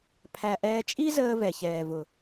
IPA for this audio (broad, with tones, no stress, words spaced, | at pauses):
pʰæ˨ʔɛː˧ t͡ʃʼi˦ zəː˦ vɛ˨çɛː˨vʊ˨